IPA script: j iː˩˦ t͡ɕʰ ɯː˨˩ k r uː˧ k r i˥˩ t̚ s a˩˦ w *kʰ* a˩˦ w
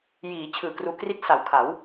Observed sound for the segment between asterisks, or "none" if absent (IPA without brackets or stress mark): kʰ